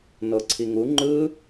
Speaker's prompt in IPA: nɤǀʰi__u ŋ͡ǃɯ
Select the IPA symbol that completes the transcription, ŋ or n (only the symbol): ŋ